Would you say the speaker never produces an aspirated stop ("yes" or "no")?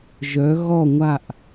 yes